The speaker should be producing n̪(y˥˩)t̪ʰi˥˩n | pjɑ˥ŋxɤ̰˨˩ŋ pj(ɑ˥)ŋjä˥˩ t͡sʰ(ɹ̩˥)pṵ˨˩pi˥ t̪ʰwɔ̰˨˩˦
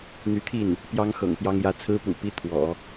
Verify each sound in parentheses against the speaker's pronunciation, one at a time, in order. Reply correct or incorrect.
incorrect: y˧˥, correct, correct

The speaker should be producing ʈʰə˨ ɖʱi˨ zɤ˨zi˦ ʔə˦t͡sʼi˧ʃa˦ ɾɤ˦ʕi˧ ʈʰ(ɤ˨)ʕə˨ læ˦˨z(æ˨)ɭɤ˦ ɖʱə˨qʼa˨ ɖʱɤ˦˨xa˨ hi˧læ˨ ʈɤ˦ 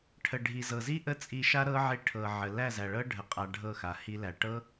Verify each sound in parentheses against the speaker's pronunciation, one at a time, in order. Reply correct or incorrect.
correct, correct

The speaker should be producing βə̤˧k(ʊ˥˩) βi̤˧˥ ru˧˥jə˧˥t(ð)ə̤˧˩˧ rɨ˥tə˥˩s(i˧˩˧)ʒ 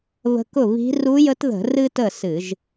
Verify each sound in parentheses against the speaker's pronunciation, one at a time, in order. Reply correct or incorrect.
correct, correct, incorrect: ɨ˧˩˧

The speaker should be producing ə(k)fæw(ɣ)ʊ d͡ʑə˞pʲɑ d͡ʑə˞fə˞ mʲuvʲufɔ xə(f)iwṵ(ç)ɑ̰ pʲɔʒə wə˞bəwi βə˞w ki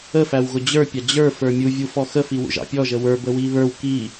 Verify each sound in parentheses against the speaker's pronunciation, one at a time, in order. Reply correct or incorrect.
incorrect: none, correct, correct, incorrect: ʒ

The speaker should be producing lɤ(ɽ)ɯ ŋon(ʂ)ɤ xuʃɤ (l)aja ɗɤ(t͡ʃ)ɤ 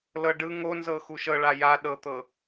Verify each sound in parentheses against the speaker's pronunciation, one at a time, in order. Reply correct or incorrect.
incorrect: ɖ, incorrect: z, incorrect: ɭ, incorrect: t̪

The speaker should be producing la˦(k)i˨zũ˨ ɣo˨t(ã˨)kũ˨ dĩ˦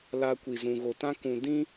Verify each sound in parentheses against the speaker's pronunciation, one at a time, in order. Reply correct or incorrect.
incorrect: kʷ, incorrect: ã˦

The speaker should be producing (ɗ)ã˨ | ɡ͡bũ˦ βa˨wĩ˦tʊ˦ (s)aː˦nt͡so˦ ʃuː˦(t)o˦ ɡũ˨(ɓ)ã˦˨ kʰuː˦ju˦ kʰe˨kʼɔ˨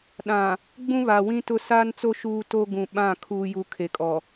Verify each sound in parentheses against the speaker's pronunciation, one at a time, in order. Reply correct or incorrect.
correct, correct, correct, correct

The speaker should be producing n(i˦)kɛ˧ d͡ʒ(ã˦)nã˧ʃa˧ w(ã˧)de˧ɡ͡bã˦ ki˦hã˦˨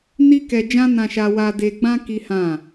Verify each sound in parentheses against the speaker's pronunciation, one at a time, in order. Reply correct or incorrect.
correct, correct, incorrect: a˧

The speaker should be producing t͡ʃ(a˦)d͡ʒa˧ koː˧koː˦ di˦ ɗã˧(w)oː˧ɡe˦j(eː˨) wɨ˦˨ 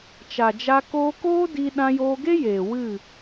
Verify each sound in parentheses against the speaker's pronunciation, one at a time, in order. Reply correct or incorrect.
incorrect: a˨, incorrect: j, correct

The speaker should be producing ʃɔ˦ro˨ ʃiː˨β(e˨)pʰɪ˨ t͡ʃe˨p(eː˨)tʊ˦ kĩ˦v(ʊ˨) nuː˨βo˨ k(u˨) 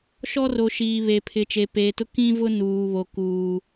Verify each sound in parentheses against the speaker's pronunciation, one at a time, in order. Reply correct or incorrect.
correct, correct, incorrect: ʊ˦, incorrect: uː˨

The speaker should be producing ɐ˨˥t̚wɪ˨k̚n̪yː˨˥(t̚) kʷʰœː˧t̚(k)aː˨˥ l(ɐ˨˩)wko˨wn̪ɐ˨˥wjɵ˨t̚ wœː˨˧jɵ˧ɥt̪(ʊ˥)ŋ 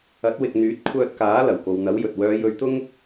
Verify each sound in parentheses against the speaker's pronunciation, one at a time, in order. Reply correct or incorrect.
correct, correct, correct, correct

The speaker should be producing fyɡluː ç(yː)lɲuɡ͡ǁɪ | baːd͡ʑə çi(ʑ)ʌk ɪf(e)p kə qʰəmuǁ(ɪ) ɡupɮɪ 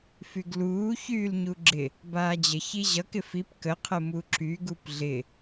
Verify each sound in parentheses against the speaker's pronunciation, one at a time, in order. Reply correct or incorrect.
correct, correct, incorrect: i, incorrect: y

